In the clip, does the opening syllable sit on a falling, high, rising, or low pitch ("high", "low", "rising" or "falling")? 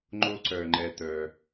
high